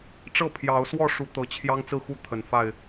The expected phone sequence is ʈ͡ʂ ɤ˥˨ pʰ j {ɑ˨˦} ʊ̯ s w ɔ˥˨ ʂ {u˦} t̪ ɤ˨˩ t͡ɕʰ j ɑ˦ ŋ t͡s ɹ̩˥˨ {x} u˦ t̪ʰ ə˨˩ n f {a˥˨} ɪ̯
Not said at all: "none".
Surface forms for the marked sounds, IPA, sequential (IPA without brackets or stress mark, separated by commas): ɑ˨˦, u˨˦, x, a˥˨